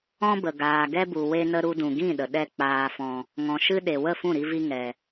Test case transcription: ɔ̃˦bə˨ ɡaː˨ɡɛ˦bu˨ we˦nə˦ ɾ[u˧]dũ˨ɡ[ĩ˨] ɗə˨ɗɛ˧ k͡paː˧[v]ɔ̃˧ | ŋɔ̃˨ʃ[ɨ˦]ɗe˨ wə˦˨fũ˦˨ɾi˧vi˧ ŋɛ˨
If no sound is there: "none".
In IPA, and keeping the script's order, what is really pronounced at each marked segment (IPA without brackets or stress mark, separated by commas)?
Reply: u˧, ĩ˦˨, f, ɨ˦